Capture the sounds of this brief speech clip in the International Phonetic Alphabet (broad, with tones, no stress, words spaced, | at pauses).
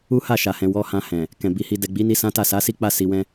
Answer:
u˦ha˦˨ʃa˨hɛ̃˨ wɔ˧ hã˧hɛ̃˨ | kɛ̃˨bi˨˦hi˧ dɛ˨ɡ͡bi˨˦ni˧ sã˦ta˦˨ sa˨˦si˦ k͡pa˦˨si˨wɛ̃˧